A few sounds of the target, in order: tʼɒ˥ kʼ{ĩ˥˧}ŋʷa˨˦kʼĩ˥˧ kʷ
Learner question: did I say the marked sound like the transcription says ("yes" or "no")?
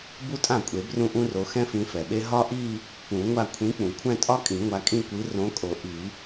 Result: no